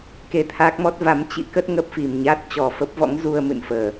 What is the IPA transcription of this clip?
k e˧ t̪ʰ aː˦˥ k̚ m ɔ˦˥ t̚ v a˨˦ m t͡ɕ ḭ˧˥ k ə˦˥ t̚ ŋ ə˦˥ p̚ f i˨˩ m ɲ a˦˥ t̚ t͡ɕ ɔ˨˩ f ə˦˥ p̚ v ɔ̰˧˥ ŋ z u˧ ə̯ m ɨ̰˧˨ n f əː˨˩

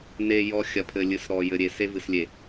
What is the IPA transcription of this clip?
n e˨ j ɔ˨ xʲ ɐ˨ pʰ ɘ˨ lʲ ɨ˨ s ɾ ɔ˨ j ɘ˨ ɾʲ e˨ s e˦ v ɨ˨ s lʲ e˨

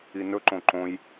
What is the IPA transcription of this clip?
i n ɵ ǃ õ ǃ õ j

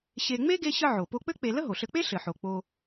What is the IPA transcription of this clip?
ɕ e˧ ŋ͡m e˥ ɡ e˥ ɕ ə˥ ʕ o˩ p o˧ k͡p ɘ˥ k͡p e˧ l ə˥ ɦ o˩ ɬ ɘ˧ k͡p e˥ ɬ ɘ˩ ħ o˩ k͡p o˧

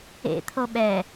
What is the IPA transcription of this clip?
ḛ t̪ʰ o ɓ ɛ

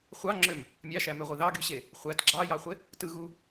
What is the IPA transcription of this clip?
χʷ ɑ ŋ͡ǁ ø m | mʲ ɑ ʃ æ m ø ʁʷ i ð ɑ ɡ y ɕ e | χʷ æ t ɡ͡ǁ ɑ j ɑ χʷ e | t ɯ ɣ u

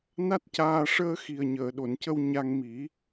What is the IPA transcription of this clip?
n a˦˥ t̚ c aː˧ ʂ əː˧ x i˨˩ ə̯ ɲ əː˨˩˨ ɗ o˨˩˨ n c ə˧ w ɲ a˧ ŋ m i˨˩˦

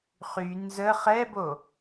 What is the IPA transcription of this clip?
χ y n z ə χ ɛ b o

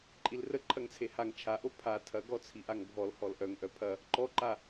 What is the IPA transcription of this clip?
ǃʼ i l r ə ǃʰ ɐ ŋ t͡sʰ e h a ŋ t͡ʃʰ a ʔ o pʰ a tʰ ɐ ɡ ɔ t͡sʰ i ʔ a ŋ bʱ ɔ l h ɔ l ʔ œ ŋ ʔ œ pʰ ɐ | ǃ ɔ ǃ a

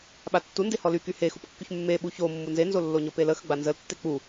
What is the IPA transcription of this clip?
ɓ a tː u n d e h ɔ l y k y h e x u p kː y ç mː e ɓ u ç o mː u n z e n z o lː o ɲ o p e l ə x ə ɡ͡b a n z ə l tː e k͡p u

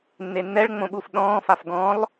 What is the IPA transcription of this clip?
nː e nː ɛ ɭ ŋ͡m õ ɓ u f ɗ ɔ̃ː f a f ɡ ɔ̃ lˠ

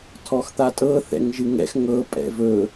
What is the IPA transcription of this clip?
tʰ ɔ x t̪ a tʼ ɤ θ ɛ̰ ŋ ʒ ɨ ŋ ɛ̰ x ŋ ɤ pʼ ɛ̰ v ɵ

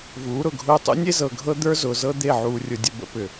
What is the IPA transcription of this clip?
v uː˨˦ ɾ ʊ˨ ɡʱ ʊː˦ tˤ ṵ˦ nʲ e˦ z ɤ˨ ɡʱ ɤ˦ d̪ ə˞˦ z ʊː˨ z ɤ˦ d̪ e˦˨ ʕ uː˨ rʲ ʊ˨ dʲ ə˨ b ə̰˦ p ʏ˨

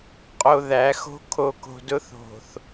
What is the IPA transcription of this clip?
qʼ o˨ ð æ˨˦ x o̤˦ kʰ o˨ k o̤˨ d ʊ˦ θ o̤˨ θ

